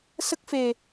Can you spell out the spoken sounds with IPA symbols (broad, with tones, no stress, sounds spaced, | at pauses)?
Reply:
s ə˦˥ k̚ f e˧